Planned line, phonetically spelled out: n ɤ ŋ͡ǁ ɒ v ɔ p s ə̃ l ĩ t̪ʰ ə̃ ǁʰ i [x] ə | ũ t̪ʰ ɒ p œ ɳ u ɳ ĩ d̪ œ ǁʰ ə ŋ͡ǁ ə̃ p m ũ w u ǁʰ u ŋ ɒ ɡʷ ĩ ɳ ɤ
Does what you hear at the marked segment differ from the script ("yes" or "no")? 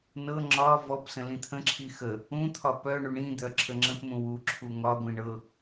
no